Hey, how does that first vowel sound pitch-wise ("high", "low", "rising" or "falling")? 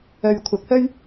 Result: low